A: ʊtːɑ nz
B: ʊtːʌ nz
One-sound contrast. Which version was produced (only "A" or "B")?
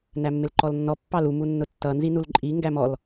B